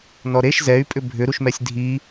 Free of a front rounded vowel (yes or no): no